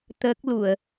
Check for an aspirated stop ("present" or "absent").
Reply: absent